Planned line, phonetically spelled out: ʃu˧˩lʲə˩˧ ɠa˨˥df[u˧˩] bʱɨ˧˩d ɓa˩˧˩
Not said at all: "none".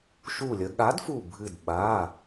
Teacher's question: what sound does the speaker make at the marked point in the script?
u˧˩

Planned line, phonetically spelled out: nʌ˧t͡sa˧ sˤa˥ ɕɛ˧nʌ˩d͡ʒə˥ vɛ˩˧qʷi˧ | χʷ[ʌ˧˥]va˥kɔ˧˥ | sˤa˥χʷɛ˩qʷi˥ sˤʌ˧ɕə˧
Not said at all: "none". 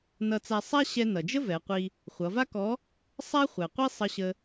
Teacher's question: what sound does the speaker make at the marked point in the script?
ʌ˩˧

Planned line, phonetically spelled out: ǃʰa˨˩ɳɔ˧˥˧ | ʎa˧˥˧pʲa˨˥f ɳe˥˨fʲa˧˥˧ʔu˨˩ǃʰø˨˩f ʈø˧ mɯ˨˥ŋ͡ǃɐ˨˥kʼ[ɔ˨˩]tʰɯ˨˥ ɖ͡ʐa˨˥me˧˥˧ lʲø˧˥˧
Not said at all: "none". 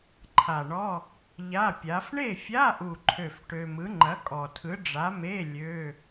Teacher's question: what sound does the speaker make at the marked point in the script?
ɔ˨˩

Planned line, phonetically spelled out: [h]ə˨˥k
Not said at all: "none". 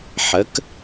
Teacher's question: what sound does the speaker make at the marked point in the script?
ħ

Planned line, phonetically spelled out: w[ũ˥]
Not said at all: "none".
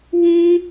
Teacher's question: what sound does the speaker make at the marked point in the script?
ũ˥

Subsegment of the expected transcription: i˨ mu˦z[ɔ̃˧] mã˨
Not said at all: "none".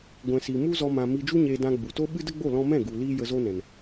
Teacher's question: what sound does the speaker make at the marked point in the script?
ɔ˧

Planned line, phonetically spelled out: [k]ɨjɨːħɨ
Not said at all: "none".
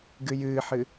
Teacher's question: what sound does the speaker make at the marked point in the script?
ɡ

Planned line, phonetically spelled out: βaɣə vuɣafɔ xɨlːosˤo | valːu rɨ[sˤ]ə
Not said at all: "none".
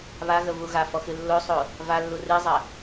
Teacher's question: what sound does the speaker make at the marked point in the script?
zˤ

